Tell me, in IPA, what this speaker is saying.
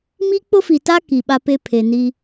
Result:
mi˦k͡pʊ˦fi˨ta˦ ki˨ɓa˦pe˦ pʰe˨ni˦

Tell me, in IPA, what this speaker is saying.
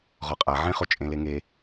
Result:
ʁɔqʼa ʕẽ χot͡ʃʼẽleŋe

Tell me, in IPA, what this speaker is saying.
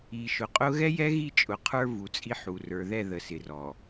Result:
i˨ʃʊ˨qʼʊ˦ ɣɛ˦jɛ˦ɣi˦˨ t͡ʃʼʊ˨qʰə˞˦ vu˨t͡sʼi˦ħu˨ rə˞˨ðɛ˦˨ ðə˨sɪ˨rɔ˨

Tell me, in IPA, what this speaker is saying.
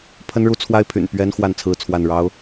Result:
pʰə˦nɻu˦t͡sʰwa˦ɪ̯ pʰy̰˨˩n pɥɛ˦n xwa˥˨nt͡sʰɹ̩˥˨t͡sʰwa˥˨n ɻɑ˦ʊ̯

